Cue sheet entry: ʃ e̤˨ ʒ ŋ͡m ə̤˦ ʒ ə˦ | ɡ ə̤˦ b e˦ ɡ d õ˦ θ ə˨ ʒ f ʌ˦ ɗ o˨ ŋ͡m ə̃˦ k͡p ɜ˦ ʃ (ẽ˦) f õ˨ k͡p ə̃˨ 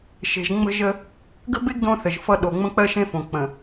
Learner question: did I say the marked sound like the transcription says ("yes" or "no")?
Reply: yes